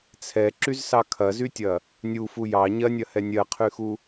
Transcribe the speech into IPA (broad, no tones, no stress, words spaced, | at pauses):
t͡sʰɛǁyzsɑ kʰɐzytʲɐ | nʲufu jɑ ɲɐnʲɐhɛ nʲɜqʰyxu